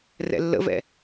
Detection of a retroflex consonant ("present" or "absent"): absent